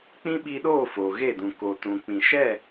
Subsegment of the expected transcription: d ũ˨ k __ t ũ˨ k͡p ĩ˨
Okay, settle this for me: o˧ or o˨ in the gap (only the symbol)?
o˨